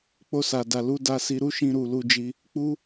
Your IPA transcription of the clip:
k͡po˧sa˨da˨lu˨˦ da˧si˧ɾu˦ʃĩ˧ ɾu˨ lu˧d͡ʒi˧ | k͡pu˦

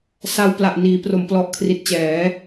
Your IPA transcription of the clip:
sa˧wpla˨˩ʔ niː˩˦pro˩˦mplɔ˨˩ʔ kʰri˨˩t̚t͡ɕɛː˩˦

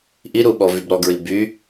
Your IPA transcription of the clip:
ʔiɾuɓɔvyb ɾɔɡɹi by

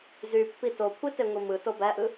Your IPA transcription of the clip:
zypːi tokʷʰiteŋʷi mɯto bæʔɯ

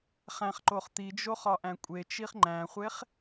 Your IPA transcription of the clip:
χæ̃χǃoχ t̪id͡ʒo χɒʔæ̃kʷʼet͡ʃiχ ŋ͡ǃæ̃χʷeχ

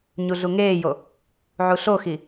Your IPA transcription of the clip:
ɲuɮuŋeːjo | ʕuɬoxi

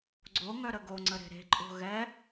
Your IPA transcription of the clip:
ɡ͡ǀoŋœɾə ɡoŋ͡ǀəɾe̤ ɾe̤ǃʼo̤ ɣɛ

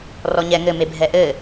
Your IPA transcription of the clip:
rɔɲɛ ŋɘ mebʱɛʔɘ

